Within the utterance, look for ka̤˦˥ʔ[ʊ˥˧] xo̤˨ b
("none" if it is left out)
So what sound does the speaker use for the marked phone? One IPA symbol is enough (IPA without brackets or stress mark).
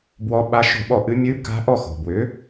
ɔ˥˧